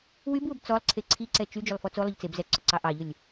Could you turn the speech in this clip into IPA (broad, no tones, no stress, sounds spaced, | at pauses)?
w y b w ʊ b t͡s ɔ lˠ ǀʰ e ǀʰ i ǀ ɛ t͡ʃ y d͡ʒ ʏ lˠ f ɔ t͡s o lˠ ʏ ʎ t͡s e b z ɛ ǀ ʊ ǀ ɑ ʔ ɑ ʎ ʊ lʲ